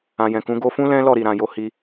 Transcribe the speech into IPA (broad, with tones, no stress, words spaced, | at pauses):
ã˨jɛ̃˨kũ˨˦ ɡo˧fũ˦ lɛ̃˦lɔ˦˨ɾi˨ɾã˨ jo˧ hi˧